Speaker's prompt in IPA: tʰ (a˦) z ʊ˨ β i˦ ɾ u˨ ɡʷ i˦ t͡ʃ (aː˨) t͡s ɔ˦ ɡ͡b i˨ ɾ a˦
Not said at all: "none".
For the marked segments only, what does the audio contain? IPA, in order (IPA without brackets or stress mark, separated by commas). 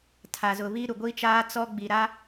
a˨, aː˦